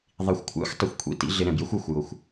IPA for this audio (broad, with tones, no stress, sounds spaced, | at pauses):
ðˤ i˨ xʷ kʷʰ æ̰˦ xʷ tˤ ʊ˨ xʷ kʷʰ ḭ˦ t ḭ˦ ɮ ɪ˧ ɾ ɛ̃˨ b j ə˦ xʷ æ˨ xʷ j ʊ˨ xʷ